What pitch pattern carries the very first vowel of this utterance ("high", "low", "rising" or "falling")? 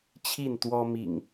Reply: falling